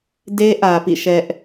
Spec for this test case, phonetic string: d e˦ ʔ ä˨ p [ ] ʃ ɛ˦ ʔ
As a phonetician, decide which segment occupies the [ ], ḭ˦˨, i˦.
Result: ḭ˦˨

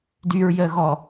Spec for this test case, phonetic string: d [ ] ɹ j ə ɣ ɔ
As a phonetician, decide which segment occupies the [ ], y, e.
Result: y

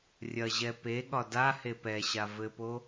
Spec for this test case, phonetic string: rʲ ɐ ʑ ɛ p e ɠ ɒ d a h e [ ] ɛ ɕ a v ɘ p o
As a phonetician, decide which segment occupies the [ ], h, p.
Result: p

